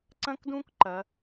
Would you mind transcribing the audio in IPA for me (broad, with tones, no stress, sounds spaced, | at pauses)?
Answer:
ǀ ɐ̃˥ k d ũ˥ k ǃ ɐ˩˧